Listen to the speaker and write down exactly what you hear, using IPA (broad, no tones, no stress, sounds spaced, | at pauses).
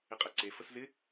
ɪ qʼ ɛ ǀ e f ə s z ɪ